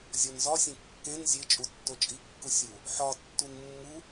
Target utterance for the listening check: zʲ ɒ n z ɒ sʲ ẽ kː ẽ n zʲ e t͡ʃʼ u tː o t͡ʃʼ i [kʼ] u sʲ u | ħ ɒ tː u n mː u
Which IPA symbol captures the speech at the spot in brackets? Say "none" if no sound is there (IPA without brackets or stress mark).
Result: kː